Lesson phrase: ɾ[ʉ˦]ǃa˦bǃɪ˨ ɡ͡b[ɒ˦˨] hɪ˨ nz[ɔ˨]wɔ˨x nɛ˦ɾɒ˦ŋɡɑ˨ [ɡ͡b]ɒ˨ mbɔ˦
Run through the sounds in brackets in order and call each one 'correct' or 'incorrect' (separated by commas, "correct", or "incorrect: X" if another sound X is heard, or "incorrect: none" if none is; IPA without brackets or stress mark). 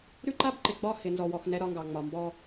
correct, correct, correct, incorrect: ŋ͡m